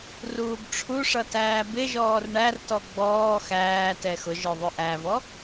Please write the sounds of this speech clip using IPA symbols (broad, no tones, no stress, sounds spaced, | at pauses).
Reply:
r uː b ʈ͡ʂʰ u ʂ ʌ t æː b ɪ ʒ ɔː r ɳ æ r t ɔ ɡ͡b ɔː x æː t ɛ x ʊ ʒ ə˞ ðˤ ʊ ʔ æ v ɔ